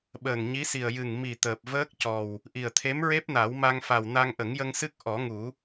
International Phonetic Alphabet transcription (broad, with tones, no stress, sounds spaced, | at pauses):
ɓ əː˨˩ ŋ ɲ i˧˥ s i˨˩ ə̯ j ɨ˨˩ ŋ m i˨˩ t̪ əː˨˩ p̚ v əː˦˥ k̚ c ɔ˨˩ w | ʔ i˨˩ ə̯ t̪ʰ e˧˥ m ɹ e˦˥ p̚ n a˨˩˦ w m a˧ ŋ f a˨˩ w n a˧ ŋ ʔ ə˨˩˦ ŋ j ə˧ ŋ s ɨ˦˥ k̚ ʔ ɔ˨˩˦ ŋ u˨˩˦